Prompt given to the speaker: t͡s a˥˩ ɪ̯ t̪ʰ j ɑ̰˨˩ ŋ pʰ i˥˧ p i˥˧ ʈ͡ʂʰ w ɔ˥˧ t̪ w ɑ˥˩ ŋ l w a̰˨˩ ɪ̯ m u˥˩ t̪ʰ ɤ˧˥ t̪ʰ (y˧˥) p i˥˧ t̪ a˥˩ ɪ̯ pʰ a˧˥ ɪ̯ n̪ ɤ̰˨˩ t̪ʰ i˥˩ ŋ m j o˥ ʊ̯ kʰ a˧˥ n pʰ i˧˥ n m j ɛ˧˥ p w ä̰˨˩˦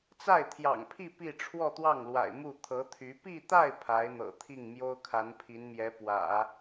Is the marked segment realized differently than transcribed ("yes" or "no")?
no